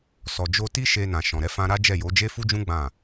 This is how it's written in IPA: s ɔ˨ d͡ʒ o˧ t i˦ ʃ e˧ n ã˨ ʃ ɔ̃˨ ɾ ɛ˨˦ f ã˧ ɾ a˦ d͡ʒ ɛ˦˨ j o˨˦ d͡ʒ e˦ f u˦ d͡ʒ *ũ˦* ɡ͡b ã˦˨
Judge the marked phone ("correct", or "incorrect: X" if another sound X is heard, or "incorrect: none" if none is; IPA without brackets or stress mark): correct